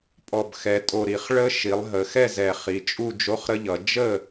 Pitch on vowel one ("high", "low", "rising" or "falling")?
low